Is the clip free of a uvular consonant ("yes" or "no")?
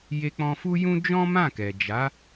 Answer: yes